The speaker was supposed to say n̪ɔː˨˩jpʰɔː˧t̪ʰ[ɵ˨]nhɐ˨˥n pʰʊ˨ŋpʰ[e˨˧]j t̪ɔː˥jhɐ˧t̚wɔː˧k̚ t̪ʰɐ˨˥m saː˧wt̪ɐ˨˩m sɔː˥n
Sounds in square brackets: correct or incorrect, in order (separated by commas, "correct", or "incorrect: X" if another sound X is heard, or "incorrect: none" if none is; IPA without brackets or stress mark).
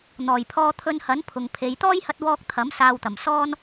incorrect: ɵ˧, correct